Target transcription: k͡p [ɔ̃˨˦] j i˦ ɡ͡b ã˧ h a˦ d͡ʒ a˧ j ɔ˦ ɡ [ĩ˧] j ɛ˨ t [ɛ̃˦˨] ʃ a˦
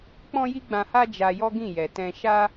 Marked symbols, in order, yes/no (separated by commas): no, no, no